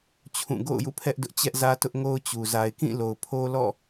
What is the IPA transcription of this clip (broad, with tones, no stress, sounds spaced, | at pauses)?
t͡ɕʰ ũ˦˨ ɡ o̰˦˨ ʊ̯ j ṵ˦˨ pʰ ɛ˦ ʔ d ʊ˦ ʔ t͡ɕ ɛ˦ ʔ z ä˦ t ʊ˦ ʔ ŋ o˦ ʊ̯ t͡ɕ u˨ z a˨ ɪ̯ k ĩ˦˨ l o˨ ʊ̯ pʰ o˦ l ɔ̰˦˨